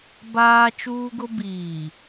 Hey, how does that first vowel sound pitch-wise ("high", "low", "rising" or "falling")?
high